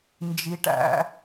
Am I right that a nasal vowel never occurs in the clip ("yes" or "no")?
yes